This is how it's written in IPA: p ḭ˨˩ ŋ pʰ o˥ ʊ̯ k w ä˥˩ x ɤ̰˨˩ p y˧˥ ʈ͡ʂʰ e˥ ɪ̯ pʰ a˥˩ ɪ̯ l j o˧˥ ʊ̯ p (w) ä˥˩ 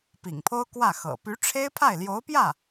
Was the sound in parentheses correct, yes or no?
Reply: no